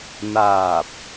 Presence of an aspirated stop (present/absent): absent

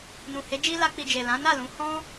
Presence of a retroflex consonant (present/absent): absent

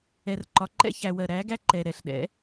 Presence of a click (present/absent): present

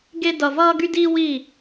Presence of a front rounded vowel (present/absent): present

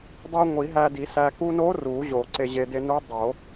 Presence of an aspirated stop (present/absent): absent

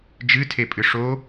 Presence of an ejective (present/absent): present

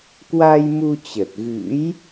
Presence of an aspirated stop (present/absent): absent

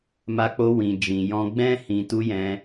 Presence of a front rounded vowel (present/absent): absent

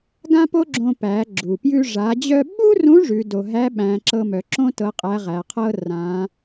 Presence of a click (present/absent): present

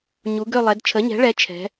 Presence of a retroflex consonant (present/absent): present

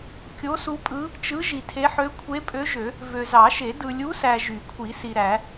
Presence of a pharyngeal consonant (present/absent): present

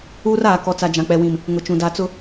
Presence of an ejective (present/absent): absent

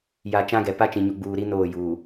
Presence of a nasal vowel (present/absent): present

